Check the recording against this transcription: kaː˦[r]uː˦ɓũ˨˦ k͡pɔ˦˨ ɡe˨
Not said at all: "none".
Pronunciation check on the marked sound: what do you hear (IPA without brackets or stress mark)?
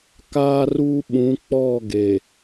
r